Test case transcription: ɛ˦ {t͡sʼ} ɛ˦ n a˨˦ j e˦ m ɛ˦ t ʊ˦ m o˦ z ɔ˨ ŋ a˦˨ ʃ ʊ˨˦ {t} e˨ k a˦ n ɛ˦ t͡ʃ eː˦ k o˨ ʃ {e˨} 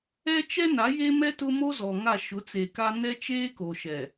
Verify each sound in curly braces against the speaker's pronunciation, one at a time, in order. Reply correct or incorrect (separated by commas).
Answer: incorrect, incorrect, incorrect